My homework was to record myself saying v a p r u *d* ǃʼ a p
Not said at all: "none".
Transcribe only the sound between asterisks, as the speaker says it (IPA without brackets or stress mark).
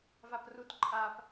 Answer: t